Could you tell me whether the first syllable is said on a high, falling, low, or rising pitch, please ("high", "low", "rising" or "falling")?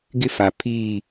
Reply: high